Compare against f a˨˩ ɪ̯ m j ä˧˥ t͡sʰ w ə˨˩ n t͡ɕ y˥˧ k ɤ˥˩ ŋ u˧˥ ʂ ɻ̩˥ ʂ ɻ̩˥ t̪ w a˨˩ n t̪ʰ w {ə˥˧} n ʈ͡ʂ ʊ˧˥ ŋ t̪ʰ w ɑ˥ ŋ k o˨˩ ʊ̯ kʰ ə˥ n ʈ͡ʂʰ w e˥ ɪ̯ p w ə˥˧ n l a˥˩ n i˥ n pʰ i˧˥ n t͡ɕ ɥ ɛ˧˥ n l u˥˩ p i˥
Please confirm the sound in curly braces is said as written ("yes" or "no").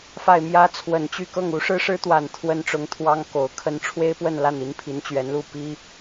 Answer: no